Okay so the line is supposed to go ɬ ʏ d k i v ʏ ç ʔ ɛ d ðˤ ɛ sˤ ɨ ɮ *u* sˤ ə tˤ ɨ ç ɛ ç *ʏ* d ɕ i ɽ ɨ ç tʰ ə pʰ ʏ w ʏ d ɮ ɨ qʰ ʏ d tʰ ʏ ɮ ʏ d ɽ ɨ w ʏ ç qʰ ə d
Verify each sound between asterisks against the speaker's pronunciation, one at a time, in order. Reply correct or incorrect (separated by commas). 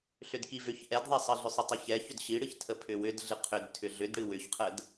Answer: incorrect, correct